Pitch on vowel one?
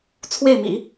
falling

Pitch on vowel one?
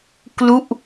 falling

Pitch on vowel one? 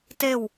falling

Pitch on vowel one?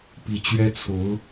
low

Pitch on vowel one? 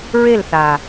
falling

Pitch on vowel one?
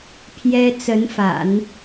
high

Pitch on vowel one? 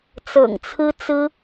low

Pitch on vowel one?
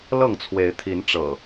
falling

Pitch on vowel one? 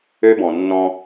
high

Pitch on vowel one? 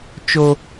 high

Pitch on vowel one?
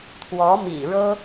rising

